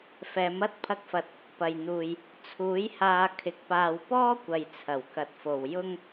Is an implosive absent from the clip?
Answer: yes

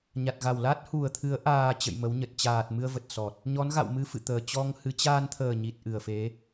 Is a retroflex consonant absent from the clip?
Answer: yes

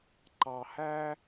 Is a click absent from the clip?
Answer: no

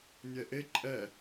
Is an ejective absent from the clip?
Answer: no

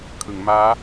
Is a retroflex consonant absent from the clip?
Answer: yes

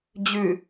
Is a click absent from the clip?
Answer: yes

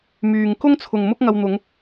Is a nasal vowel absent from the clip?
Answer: yes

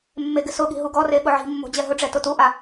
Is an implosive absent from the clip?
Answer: no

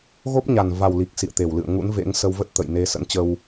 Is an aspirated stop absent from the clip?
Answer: yes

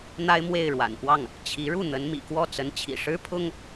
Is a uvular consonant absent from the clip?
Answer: yes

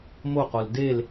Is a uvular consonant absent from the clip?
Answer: no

